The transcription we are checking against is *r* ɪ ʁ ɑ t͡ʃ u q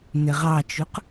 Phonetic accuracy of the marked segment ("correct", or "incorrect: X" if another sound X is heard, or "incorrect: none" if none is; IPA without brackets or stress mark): incorrect: n